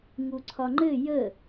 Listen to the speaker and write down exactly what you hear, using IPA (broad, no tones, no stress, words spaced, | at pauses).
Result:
ŋuǀʰɒŋ͡ǃɘ jə